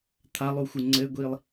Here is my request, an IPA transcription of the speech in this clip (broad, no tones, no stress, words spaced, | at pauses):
t̪ʰalˠuxʷɨ ŋ͡ǀɘɡʷilˠ